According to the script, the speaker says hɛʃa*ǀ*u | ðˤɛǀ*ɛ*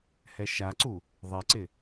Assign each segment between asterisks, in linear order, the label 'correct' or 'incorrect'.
correct, incorrect: ɪ

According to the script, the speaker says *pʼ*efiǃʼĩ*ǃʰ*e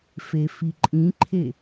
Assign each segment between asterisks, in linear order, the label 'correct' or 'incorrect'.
incorrect: f, correct

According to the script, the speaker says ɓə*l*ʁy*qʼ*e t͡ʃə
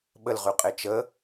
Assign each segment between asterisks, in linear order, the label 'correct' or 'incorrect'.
correct, correct

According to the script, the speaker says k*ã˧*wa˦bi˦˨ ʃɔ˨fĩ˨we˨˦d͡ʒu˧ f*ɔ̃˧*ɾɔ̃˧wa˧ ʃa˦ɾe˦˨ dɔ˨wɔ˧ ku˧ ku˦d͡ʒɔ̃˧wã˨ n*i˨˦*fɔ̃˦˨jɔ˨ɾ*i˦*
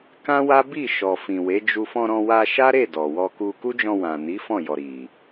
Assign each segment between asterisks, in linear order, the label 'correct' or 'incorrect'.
incorrect: ã˦, correct, correct, incorrect: i˨

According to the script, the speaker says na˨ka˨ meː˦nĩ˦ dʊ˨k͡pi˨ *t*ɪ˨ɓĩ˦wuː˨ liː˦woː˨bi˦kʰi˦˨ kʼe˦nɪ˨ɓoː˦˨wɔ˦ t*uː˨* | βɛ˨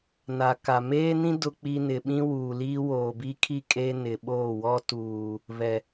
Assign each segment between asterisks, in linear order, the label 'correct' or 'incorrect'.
incorrect: n, correct

